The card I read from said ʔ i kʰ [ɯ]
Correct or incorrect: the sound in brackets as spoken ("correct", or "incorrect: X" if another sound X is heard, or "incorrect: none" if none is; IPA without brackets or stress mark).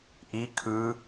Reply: correct